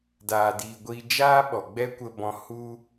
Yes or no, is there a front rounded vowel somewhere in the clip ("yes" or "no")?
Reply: no